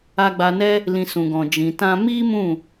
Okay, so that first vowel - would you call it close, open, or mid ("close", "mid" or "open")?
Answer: open